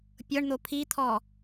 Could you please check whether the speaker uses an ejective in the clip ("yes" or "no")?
no